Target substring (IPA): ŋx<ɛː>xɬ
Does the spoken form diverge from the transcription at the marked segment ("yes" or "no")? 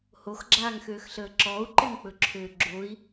yes